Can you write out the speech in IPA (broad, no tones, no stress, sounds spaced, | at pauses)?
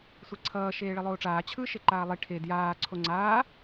sʷ i ǀʰ ʌː ʃ eː ɭ i lˠ oː ʈ͡ʂ aː t͡ɕʰ ɯ ʃ e ǃ aː lˠ i ʈʰ e d j aː ǀʰ o ŋ͡ǀ aː